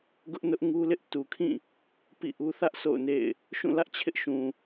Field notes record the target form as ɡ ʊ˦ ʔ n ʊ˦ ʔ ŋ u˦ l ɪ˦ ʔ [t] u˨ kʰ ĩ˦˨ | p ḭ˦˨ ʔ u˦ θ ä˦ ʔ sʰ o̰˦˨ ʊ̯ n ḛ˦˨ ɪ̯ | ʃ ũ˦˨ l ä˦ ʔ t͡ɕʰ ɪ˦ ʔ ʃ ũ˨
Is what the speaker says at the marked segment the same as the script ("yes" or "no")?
yes